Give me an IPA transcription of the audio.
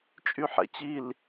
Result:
t͡ʃʼ y ħ ɛ̰ t͡ɕ i l

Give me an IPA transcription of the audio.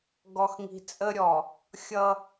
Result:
ɡ ɔ˨ x ŋ i̤˨ t͡sʼ ə˦ ɾʲ ɔ˨ | xʲ ʌ˦

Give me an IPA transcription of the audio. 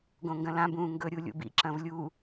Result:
ɡ õ ŋ ɡ ɐ̃ l ã b ũː ŋ ɡ ɵ ɾʲ u lʲ ṵ b ḭ ǁ ɐ̃ v lʲ u

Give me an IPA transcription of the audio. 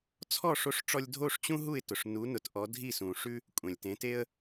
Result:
t͡sʰ ɔ˥˩ ʂ o˧ ʂ ʈ͡ʂ ɔ˧ lʲ dʱ o˥˩ ʂ t͡ɕ ũ˥ ɦ u˥˩ ɪ̯ t ʊ˩ ʂ n u˩˥ n ʊ˩˥ t ʔ ɔ˩˥ dʱ i˥˩ s ũ˩ ʂ ʉ˥ | kʷʼ ɛ̃˩ lʲ t ẽ˩˥ t e˥ ə̯

